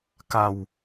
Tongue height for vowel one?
low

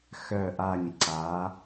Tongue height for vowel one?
mid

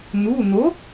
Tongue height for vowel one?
high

